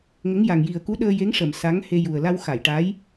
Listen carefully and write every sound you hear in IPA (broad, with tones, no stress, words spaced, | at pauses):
ŋə˧˥ŋja˨˩ŋ ji˨˩ə̯ku˧˥ɗəː˧ je˧˥ŋʂəː˨˩˨m sa˧˥ŋhe˧ju˨˩ə̯ la˧wxa˨˩˨j ʈa˧˥j